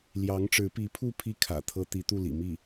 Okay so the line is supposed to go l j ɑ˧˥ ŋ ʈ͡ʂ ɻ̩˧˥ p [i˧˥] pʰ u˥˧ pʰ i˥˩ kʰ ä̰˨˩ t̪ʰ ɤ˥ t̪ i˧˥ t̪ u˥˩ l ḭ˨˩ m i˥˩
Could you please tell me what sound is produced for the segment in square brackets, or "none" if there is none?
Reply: i˧˥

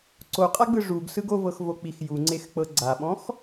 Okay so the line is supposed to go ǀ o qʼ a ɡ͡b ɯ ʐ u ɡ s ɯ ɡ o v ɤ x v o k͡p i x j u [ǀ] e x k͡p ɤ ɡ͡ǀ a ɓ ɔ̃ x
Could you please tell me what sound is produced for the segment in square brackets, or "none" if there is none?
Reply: ŋ͡ǀ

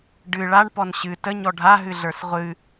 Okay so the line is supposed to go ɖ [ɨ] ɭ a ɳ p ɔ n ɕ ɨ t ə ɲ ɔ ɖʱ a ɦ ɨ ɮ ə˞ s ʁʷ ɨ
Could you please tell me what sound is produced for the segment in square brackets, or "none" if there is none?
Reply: ɨ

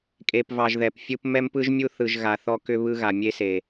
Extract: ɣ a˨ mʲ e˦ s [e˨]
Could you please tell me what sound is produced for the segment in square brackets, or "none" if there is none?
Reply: e˨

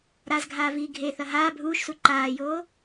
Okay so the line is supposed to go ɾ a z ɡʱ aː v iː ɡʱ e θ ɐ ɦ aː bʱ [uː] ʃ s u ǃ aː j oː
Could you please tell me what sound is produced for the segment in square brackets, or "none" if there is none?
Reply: uː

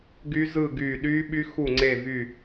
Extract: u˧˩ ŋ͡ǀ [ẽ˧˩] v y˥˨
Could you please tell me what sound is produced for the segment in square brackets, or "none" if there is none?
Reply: e˧˩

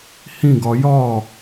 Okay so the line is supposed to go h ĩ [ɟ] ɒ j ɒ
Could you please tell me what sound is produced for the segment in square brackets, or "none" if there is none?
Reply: ɡ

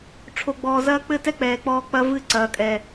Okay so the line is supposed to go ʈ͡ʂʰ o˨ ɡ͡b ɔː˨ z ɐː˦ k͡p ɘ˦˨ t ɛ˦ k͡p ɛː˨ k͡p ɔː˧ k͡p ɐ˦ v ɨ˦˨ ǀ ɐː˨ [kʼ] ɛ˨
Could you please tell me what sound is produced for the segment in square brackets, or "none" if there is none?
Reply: kʼ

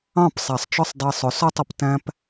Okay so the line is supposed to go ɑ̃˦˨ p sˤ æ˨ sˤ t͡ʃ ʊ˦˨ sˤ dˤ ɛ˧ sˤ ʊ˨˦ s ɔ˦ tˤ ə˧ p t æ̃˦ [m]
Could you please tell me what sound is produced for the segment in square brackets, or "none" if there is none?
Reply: p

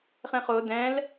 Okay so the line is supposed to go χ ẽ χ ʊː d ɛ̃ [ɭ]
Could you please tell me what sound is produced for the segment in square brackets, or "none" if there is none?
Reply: l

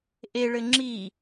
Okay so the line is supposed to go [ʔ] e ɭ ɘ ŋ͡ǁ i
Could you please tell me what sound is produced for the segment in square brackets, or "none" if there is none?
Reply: ʔ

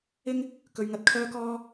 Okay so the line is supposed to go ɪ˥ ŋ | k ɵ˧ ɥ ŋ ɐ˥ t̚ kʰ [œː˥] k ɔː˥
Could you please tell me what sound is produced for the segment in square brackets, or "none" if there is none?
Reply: œː˥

